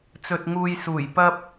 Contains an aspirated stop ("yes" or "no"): no